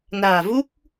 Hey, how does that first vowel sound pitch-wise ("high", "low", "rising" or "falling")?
low